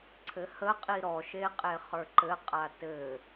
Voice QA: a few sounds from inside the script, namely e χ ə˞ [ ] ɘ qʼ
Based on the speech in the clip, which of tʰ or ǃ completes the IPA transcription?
ǃ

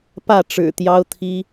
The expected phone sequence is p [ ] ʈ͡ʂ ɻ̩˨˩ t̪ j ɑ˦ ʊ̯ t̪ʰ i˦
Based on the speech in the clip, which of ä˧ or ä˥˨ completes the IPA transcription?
ä˥˨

